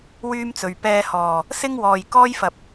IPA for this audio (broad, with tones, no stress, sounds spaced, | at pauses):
w yː˥ m t͡s ɵ˨ ɥ p ɛː˧ h ɔː˨˩ | s ɪ˥ ŋ w ɔː˨ j k ɔː˥ j f ɐ˨ p̚